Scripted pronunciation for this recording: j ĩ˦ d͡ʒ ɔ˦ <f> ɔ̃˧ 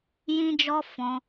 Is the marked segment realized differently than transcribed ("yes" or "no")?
no